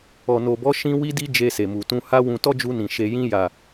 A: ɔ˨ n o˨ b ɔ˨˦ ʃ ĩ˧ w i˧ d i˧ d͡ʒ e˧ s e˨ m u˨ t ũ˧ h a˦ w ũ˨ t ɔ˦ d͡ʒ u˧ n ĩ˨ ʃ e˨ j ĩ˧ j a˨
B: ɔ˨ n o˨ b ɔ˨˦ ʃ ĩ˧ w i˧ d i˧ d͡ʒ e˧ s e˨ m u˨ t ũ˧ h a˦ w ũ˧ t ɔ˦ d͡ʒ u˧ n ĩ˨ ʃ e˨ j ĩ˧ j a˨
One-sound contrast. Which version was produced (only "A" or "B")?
B